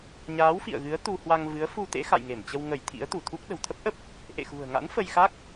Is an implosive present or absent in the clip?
present